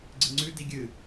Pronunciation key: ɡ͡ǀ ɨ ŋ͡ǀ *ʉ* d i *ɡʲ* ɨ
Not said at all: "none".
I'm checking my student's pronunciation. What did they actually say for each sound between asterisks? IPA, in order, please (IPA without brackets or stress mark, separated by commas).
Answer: ʉ, ɡʲ